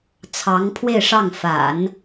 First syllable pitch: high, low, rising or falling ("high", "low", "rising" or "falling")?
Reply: rising